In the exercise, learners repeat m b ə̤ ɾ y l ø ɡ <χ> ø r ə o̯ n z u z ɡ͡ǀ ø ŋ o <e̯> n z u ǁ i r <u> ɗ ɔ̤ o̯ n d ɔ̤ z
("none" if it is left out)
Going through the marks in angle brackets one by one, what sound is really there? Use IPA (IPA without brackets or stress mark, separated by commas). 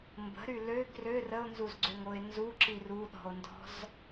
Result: r, e̯, u